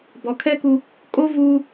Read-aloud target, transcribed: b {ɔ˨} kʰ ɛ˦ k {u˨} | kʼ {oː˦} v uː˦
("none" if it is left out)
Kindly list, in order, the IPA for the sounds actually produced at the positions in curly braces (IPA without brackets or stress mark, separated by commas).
ɔ˨, u˦, o˦